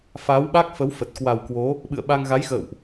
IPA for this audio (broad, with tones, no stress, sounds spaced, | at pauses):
f aː˨˦ w ɓ a˦˥ k̚ f ə˨˦ w f ə˨˩ t̚ k w a˨˩ w k w o˨˦ | ɓ ɨ̰˧˨ ə̯ ɓ a˧ ŋ ɣ a˨˦ j x ə̰ː˧˨ w ʔ